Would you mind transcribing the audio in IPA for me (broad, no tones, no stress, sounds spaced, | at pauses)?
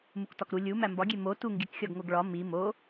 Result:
m u k t ɒ k ɾ u lʲ u m æ m b ɒ ɡʲ e m o t u ŋ ɡ i k xʲ ɒ ɡ ŋ o ɡ ɭ ɒ m i m o